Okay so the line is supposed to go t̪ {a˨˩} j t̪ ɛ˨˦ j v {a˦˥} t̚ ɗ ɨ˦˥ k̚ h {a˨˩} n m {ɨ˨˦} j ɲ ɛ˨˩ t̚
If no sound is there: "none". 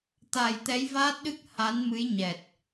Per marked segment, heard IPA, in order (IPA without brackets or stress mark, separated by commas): a˨˩, aː˦˥, a˨˦, ɨ˨˦